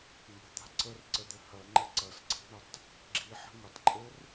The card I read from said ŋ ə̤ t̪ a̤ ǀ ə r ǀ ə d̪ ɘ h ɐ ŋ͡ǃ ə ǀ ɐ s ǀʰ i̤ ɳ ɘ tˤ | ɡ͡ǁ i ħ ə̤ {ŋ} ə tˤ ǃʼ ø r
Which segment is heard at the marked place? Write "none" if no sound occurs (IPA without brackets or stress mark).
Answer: ŋ